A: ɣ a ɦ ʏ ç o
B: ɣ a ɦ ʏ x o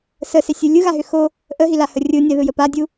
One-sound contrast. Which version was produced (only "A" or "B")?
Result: B